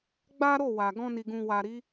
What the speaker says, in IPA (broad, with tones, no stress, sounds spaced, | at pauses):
ɡ͡b a˦ ɾ o˦˨ w a˨ ɡ ɔ̃˧ n i˨ ɡ ũ˨ w a˨ ɾ i˨˦